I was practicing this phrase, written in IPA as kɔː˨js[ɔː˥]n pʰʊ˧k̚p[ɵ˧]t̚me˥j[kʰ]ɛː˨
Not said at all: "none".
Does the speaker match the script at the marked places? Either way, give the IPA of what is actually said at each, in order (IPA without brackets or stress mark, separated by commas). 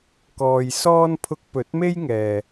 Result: ɔː˥, ɵ˨˥, ŋ